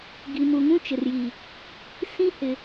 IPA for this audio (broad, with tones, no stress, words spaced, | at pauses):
ɡi˨mu˨ŋũ˦ t͡ʃɪ˨rjiː˨ | sĩ˦hɪ˨